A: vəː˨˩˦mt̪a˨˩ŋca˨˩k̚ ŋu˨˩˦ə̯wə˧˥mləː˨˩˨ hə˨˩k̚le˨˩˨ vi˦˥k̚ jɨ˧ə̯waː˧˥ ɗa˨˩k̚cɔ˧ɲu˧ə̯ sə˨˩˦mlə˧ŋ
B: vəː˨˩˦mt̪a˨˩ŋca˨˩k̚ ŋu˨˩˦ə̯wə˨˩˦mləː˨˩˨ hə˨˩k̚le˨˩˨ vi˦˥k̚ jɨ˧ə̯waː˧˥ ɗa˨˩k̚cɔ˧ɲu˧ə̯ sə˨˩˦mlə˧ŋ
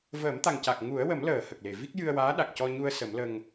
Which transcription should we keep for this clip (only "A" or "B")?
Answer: B